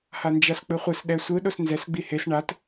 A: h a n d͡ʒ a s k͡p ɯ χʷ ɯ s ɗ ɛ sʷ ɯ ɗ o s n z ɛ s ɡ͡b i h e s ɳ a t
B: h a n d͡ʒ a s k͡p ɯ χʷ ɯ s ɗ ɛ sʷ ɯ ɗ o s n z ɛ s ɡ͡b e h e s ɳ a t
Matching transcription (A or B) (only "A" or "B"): A